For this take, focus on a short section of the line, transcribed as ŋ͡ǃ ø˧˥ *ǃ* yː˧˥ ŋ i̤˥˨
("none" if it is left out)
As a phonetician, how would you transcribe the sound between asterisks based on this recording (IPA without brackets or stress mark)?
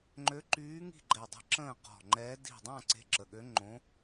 ǃ